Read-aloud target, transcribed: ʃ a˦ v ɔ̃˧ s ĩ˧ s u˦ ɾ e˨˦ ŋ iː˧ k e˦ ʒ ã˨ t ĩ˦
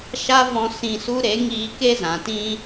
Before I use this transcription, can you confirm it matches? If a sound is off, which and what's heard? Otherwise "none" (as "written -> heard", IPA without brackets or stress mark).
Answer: ʒ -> z